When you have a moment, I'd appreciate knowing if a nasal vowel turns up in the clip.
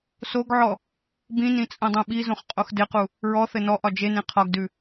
yes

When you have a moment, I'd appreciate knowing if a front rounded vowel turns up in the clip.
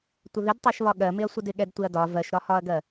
no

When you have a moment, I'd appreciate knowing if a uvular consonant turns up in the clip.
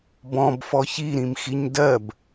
no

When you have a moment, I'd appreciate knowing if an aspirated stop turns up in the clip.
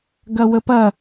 no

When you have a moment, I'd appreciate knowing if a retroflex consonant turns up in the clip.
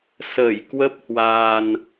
no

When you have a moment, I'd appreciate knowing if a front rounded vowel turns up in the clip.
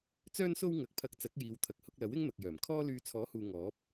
yes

